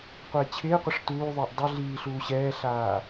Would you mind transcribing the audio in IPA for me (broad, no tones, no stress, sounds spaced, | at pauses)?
qʷ ɛː t͡ɕʰ ɪː qʷ ɪ ʂ t uː ðˤ ɪː ʔ dˤ ɪ ɮ iː ɬ uː ɕ ɛː ɬ aː